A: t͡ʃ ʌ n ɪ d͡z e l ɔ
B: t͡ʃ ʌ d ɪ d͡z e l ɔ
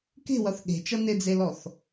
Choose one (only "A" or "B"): A